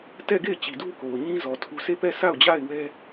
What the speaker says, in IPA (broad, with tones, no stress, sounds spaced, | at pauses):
t ɛ˦˨ ɡ e˦˨ ɪ̯ t͡ɕ i˨ d u˦ k o˨ ʊ̯ ɲ ĩ˦ z ɔ˨ tʰ u˦ s e˦˨ p ɛ˦˨ sʰ a˦˨ ʊ̯ d͡ʑ a˦˨ ɪ̯ w ɛ˦